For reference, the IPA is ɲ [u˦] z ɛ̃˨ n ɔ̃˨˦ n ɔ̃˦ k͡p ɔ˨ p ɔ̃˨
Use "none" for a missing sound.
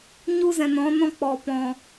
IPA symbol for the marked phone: u˦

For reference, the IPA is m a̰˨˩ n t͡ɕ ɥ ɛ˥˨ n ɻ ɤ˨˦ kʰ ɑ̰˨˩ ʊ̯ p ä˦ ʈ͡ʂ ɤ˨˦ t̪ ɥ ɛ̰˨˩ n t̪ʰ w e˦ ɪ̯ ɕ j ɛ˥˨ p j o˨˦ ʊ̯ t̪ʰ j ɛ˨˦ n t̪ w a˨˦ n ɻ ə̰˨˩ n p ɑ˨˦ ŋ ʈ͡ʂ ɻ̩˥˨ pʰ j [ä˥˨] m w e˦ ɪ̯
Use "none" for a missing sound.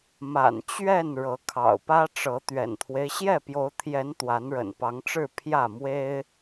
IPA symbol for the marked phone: ä˥˨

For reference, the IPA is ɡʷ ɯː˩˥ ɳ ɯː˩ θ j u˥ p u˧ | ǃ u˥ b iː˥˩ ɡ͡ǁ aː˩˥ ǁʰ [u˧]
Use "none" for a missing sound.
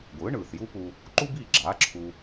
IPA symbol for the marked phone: u˧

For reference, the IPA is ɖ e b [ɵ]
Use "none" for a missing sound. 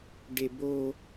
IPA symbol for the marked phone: o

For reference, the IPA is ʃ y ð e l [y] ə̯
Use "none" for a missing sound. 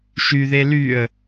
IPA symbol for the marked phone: y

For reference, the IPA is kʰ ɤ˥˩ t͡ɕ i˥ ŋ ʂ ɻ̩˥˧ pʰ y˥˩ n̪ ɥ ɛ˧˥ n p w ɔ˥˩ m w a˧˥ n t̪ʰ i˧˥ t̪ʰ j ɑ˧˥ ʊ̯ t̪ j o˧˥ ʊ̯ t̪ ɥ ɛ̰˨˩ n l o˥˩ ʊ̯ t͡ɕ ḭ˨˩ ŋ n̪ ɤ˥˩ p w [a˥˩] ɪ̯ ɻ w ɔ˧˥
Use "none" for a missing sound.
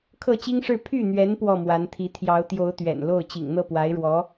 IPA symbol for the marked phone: a˧˥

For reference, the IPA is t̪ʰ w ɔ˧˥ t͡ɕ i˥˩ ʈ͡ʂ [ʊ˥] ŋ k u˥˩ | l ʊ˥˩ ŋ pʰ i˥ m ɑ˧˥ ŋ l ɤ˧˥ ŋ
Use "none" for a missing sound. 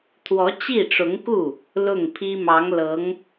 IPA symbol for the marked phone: ʊ˧˥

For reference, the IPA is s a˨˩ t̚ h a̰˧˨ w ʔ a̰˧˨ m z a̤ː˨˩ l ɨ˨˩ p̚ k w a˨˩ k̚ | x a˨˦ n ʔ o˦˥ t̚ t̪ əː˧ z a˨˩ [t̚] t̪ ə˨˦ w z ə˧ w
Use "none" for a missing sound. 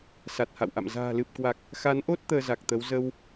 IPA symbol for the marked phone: k̚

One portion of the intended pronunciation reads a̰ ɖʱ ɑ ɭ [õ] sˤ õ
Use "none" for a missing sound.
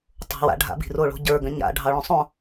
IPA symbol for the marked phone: õ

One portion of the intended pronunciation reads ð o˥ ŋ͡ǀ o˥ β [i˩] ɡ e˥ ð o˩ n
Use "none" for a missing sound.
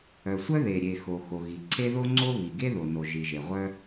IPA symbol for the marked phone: i˩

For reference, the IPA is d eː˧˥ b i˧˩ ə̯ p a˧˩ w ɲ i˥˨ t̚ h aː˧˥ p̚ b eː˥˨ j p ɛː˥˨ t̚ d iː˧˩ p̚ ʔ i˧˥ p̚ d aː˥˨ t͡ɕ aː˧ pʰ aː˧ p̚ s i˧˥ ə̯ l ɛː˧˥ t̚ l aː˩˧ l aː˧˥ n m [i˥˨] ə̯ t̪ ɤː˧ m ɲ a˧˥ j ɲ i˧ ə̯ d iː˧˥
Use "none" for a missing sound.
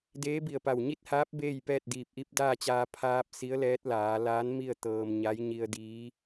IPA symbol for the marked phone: i˥˨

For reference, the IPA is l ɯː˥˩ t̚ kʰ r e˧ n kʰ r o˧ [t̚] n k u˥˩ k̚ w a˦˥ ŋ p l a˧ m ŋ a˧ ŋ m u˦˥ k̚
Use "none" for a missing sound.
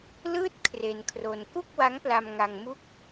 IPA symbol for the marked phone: none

